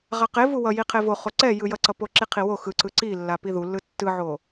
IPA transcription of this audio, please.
ʁaqev uwʌ jiqʰevo χoǀɛ jɯjʌǀʌ poǁiqʰiwo xɯǀɯ ǀi lːapiðulːɯ tːɯʕo

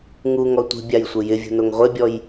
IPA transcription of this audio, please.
ŋuŋɔ tʷi̤bʲajsʷɪ jɪvʲṳnoŋ ʁʷebʲɔj

